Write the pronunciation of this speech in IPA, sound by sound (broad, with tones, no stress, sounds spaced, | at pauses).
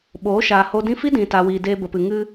ɓ oː˨˦ ʃ aː˨ h o˧ d ĩ˦ f i˦ d ĩ˨ t a˨ w iː˨ d eː˧ b ə˨ p ɨ˨ ŋ ɨ˧